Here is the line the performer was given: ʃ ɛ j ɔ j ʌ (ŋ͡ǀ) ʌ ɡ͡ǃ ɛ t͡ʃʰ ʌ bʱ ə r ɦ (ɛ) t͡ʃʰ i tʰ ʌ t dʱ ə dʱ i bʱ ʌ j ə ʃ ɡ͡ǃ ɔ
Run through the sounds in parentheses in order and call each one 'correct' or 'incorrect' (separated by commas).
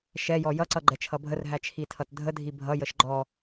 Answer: incorrect, incorrect